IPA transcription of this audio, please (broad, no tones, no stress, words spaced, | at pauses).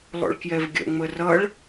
lˠo̰ɭkjɛvɡʲə̰ ŋ͡mərʌɭ